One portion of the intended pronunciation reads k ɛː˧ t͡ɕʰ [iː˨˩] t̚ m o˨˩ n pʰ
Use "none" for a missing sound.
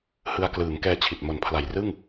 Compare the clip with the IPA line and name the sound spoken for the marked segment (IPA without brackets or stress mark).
i˨˩